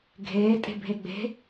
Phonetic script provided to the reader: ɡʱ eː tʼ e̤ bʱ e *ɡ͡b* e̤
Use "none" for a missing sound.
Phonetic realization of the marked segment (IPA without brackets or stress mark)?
ɡ͡b